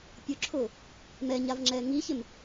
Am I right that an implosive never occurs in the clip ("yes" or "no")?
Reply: yes